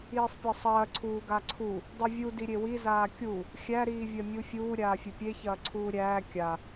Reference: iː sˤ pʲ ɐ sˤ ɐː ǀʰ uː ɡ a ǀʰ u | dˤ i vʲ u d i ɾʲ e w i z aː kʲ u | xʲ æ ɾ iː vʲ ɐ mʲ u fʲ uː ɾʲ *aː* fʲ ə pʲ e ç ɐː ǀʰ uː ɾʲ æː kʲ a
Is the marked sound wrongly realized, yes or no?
no